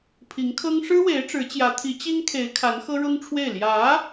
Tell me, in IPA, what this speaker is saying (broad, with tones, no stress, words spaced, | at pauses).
pʰi˧˥ŋkʰɤ˥ŋ ʂɻ̩˥we˧˥ɪ̯ ʈ͡ʂɻ̩˧˥t͡ɕjä˧˥ t̪ʰi˧˥t͡ɕi˥ŋkʰe˧˥ɪ̯ kʰa˧˥nxɤ˥ɻʊ˥ŋʈ͡ʂʰwe˥˩ɪ̯ ljä˧˥